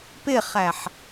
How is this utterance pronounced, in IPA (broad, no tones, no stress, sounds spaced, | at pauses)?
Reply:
p ɪ χ æ ħ